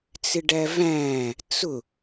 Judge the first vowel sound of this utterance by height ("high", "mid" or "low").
high